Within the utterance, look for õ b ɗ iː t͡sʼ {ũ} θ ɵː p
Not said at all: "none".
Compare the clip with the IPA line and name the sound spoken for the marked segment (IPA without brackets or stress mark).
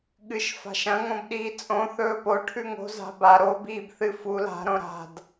õ